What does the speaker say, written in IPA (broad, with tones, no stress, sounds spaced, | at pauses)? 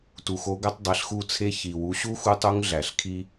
t u˩ x o˧˥ ɡ æ˥ tˤ dˤ e˩˥ ɬ x u˥˨ t͡sʰ e˥ ç i˩ w u˩˥ ɕ u˥ x u˧˥ tˤ u˧˥ ŋ ɮ æ˩ ɬ kʰ i˥